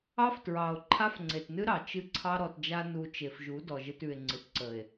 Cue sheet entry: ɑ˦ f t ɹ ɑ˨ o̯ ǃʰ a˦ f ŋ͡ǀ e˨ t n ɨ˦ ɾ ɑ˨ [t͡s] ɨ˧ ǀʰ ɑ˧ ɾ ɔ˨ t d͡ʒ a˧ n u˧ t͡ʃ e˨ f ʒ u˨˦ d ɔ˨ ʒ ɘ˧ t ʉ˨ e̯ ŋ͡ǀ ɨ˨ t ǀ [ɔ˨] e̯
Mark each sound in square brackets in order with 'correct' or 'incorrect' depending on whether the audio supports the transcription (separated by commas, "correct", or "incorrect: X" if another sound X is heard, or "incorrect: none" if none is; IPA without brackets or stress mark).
incorrect: t͡ʃ, incorrect: ə˨